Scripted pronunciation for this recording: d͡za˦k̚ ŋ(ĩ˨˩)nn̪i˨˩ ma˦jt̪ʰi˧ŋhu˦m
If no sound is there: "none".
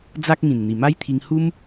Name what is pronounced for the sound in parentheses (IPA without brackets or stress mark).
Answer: ĩ˨˩